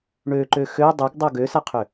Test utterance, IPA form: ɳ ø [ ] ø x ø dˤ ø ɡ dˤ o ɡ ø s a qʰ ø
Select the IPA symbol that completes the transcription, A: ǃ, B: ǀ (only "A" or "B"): A